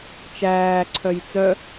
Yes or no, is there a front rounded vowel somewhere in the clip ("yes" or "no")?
yes